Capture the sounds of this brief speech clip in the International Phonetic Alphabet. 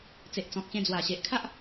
t͡s e˨ ʔ t͡s ɔ̃˨ k̚ ɕ ẽ˧ d͡z w a˨˩ ɕ e˨ ʔ kʰ a˦ ʔ

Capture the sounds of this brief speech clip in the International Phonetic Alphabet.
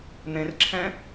n̪ ẽ r ǁʰ ɛ̃

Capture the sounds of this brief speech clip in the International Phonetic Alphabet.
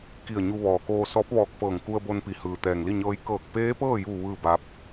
k i˧˩ ə̯ ɲ u˧ ʋ ɔː˩ k oː˧ s ɔː˧˥ p̚ ʋ ɔː˧ k̚ f ɤː˧˩ ŋ k u˧ ə̯ b o˧ n p i˩ h ɯː˩ t̪ ɛː˩ ŋ l i˥˨ ɲ ɤː˧˥ j k ɤː˧˩ k̚ p eː˧˥ p ɤː˥˨ j u˧˩ ʋ ɯː˥˨ b a˧˥ p̚

